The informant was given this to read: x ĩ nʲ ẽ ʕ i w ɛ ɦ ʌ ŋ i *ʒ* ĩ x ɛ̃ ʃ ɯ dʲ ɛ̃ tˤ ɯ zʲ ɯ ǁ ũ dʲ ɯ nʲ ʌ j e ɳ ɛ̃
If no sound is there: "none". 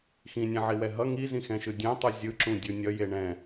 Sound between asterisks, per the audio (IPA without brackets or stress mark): z